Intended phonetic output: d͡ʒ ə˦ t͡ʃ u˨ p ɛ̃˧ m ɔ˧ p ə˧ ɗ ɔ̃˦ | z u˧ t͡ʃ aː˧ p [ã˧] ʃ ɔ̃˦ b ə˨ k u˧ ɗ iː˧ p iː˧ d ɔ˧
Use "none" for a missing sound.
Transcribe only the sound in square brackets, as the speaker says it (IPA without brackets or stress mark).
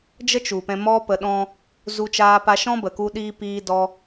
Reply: a˧